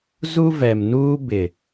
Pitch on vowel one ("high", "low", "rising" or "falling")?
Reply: high